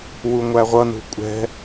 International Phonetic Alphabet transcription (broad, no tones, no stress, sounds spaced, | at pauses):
w u ŋʷ æ ʁʷ ʌ n ṳ kʷʼ ɛ̤